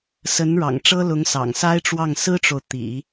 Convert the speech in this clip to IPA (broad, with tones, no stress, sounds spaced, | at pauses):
s ə˧˥ n ɻ ɑ̰˨˩ ŋ ʈ͡ʂ ɤ˥ l ʊ˧˥ ŋ s ɑ̰˨˩ ŋ s a˥ ɪ̯ ʈ͡ʂ w ɑ˥˩ ŋ s ɹ̩˥ ʈ͡ʂ o˨ ʊ̯ t̪ ḭ˨˩˦